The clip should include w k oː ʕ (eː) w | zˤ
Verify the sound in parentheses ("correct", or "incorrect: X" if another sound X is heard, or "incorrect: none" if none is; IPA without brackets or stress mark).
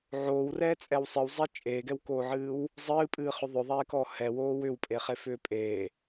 incorrect: ɨː